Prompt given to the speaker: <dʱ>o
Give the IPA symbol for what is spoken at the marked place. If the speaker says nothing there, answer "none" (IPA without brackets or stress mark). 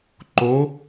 ǃ